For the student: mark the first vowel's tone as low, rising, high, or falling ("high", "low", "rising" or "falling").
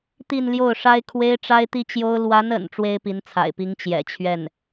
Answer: falling